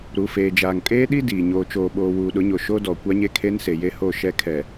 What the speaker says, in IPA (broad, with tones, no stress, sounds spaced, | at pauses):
ɾ u˨ f eː˨ d͡ʒ aː˨ ŋ kʼ eː˦ ɗ i˦ d iː˨ ɲ oː˨ t͡ʃ oː˨ ɓ oː˨ w uː˨ ɗ ʊ˨˦ ɲ o˨ ʃ o˦ d ɔ˨ kʷ a˦ ɲ e˦ kʰ e˦ n s e˨ j e˦ h o˦˨ ʃ ɛ˦ kʰ ɛ˨